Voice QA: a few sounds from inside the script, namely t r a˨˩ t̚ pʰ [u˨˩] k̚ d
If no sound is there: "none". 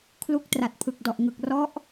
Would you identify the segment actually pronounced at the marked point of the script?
ɯ˨˩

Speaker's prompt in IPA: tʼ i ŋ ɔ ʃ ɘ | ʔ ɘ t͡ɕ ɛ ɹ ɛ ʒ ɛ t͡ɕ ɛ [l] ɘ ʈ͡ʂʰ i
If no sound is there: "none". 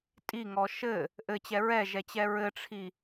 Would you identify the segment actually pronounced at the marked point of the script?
ɹ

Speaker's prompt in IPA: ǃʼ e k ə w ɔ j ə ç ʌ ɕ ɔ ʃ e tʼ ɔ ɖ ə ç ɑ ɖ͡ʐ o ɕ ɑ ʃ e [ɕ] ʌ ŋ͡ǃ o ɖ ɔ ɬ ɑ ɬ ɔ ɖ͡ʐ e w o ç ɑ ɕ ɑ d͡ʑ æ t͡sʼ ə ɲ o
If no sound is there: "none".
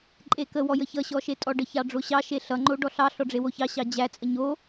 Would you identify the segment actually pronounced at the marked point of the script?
ɬ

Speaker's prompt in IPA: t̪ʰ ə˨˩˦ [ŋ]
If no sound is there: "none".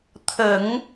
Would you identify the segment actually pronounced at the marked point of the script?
ŋ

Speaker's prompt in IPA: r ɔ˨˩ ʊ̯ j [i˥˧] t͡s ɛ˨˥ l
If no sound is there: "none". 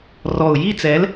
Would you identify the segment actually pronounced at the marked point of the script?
i˥˧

